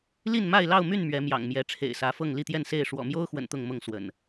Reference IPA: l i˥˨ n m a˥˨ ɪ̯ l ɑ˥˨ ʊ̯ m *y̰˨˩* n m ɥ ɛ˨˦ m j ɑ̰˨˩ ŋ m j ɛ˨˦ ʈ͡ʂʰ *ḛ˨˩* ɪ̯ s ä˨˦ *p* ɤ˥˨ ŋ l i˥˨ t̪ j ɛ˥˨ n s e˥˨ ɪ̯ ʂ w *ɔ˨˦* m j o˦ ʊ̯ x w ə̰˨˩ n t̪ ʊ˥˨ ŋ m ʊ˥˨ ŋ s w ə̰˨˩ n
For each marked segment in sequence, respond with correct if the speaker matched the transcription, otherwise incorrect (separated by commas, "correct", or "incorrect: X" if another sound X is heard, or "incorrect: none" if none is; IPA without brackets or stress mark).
incorrect: y˥˨, correct, incorrect: f, incorrect: ɔ̰˨˩